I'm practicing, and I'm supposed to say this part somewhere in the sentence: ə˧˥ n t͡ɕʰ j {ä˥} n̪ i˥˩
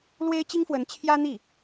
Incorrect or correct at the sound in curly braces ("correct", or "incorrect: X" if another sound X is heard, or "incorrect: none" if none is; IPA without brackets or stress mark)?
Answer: correct